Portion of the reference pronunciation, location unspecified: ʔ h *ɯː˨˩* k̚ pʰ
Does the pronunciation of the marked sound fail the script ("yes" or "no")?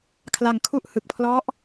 yes